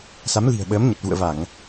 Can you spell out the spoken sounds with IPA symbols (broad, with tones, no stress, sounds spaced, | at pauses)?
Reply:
s a˨˦ m l i̤˨˩ ə̯ ɓ əː˨˦ m ɲ ə˨˩ t̚ v ṵ˧˨ ə̯ v a˧˩˨ ŋ